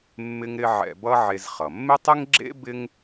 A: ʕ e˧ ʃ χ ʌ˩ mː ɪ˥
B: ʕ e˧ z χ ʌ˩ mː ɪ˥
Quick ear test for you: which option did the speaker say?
B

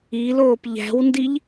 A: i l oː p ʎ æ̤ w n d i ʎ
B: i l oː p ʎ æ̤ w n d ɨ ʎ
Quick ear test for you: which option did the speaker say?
A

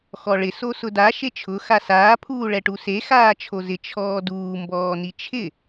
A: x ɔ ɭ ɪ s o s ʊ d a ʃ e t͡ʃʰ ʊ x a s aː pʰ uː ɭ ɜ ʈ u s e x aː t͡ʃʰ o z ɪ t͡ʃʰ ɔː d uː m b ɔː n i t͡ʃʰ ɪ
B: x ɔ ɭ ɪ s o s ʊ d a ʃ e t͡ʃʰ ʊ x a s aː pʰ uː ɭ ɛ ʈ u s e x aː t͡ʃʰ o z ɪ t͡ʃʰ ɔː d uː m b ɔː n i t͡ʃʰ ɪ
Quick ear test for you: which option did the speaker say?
B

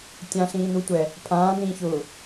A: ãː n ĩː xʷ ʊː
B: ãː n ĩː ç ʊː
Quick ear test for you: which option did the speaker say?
B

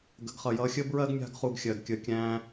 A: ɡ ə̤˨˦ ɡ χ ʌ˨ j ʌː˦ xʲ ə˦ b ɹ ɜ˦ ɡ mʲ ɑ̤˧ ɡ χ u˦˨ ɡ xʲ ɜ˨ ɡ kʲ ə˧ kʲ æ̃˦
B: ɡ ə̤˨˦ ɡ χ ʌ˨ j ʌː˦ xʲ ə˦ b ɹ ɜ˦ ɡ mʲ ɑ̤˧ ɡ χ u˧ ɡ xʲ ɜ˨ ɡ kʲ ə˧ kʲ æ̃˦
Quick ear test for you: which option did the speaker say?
B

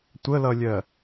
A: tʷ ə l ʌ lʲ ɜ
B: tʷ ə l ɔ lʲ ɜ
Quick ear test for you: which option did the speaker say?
A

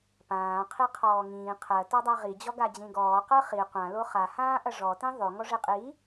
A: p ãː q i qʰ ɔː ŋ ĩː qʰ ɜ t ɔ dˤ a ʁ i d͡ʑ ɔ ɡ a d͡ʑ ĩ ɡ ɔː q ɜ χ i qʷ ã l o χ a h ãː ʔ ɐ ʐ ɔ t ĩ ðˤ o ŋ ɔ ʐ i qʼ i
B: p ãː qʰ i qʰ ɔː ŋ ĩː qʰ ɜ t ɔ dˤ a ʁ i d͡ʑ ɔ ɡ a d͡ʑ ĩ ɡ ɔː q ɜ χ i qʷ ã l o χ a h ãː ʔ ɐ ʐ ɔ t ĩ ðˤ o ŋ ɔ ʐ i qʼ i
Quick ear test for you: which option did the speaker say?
B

